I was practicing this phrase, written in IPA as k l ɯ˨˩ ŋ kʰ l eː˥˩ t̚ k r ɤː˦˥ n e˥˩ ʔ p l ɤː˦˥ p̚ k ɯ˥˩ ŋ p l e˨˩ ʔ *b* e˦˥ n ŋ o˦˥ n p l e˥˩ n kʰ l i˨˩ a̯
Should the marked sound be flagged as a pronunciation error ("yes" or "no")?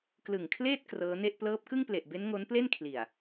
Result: no